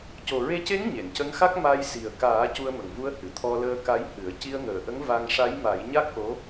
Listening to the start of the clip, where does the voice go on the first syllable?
low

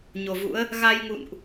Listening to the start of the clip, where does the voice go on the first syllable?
low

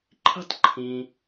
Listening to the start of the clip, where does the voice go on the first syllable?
high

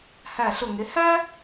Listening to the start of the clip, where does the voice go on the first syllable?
falling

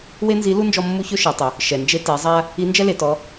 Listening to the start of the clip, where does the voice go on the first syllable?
high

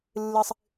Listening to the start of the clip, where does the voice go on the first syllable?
high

